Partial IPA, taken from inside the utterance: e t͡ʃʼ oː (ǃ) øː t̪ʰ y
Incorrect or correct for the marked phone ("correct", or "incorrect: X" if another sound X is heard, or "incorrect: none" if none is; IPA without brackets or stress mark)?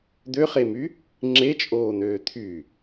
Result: incorrect: n̪